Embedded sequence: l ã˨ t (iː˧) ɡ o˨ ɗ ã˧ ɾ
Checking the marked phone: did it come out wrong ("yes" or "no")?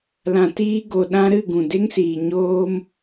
no